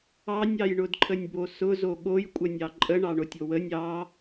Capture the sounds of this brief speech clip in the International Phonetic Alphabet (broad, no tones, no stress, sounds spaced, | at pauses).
ɑ nʲ ɑ j ɳ ʊ d ǃʰ ə nʲ b o s ʊ z o ɠ o j kʷʼ ə nʲ ɑ ǃʼ ə ɳ ɑ ɳ o tʲ o w ə nʲ ɑ